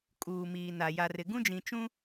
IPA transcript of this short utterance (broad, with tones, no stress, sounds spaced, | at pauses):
kʼ uː˨ m iː˨ n a˨ j a˨ r ɪ˨ ɡ ũ˦ d͡ʒ ĩ˨ t͡ʃ ũ˦